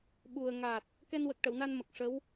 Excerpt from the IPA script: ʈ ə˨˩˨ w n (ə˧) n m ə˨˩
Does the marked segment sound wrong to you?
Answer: yes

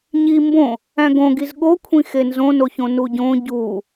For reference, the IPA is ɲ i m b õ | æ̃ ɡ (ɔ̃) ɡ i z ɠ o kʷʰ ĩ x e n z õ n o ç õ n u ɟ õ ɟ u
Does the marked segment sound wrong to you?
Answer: yes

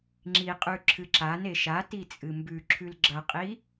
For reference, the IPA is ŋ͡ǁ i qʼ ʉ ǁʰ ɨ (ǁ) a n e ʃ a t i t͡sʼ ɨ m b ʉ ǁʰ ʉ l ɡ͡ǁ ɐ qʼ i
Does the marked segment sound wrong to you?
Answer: no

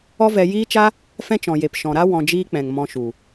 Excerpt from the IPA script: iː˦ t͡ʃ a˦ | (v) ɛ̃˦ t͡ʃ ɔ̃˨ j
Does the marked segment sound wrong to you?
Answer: yes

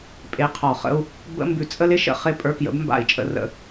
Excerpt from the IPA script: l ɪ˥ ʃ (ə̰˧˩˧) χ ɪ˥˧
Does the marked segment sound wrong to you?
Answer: no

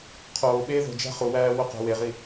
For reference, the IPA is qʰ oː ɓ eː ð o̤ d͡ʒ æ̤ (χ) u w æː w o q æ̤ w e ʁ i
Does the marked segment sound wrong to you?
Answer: no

